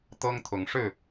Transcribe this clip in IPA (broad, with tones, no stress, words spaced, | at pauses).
t̪ɤ˦ŋt̪ʰʊ˨˦ŋʂɻ̩˥˨